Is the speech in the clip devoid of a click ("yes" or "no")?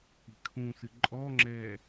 no